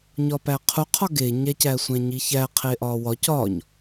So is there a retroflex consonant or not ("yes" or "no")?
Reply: no